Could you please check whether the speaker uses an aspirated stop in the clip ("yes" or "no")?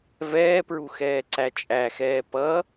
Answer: no